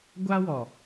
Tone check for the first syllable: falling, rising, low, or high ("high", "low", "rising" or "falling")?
high